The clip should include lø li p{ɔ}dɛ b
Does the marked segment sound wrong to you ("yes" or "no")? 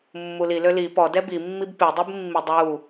no